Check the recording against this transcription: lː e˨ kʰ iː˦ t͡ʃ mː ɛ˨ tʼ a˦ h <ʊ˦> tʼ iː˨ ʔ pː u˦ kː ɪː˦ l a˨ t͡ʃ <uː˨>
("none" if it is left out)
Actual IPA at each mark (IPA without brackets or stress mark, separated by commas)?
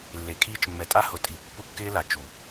ʊ˨, u˨